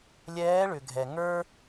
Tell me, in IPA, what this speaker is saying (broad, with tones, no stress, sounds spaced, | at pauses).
lʲ ɛː˧˥ ɭ ʏ˩ ɡʱ ɛ˩ ŋ ə˞˥